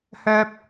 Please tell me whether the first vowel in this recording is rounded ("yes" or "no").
yes